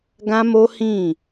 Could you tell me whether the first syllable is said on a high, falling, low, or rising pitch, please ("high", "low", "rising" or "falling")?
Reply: high